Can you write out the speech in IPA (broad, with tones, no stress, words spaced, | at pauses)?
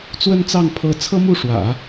t͡swə˥˧nt͡sɑ˥˩ŋ pʰɤ˧˥t͡sʰɤ˥mu˥˩ʂwä̰˨˩˦